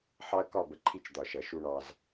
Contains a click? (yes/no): yes